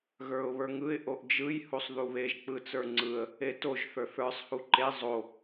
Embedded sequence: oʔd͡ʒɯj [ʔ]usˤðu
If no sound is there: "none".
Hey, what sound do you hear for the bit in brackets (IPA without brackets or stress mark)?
h